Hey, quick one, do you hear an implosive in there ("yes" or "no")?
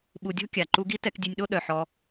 yes